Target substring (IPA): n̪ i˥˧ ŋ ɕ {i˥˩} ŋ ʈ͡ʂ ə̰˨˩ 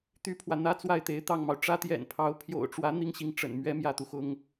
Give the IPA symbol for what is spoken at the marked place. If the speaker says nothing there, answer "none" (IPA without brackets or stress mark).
i˥˩